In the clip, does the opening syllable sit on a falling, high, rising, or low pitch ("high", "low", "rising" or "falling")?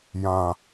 low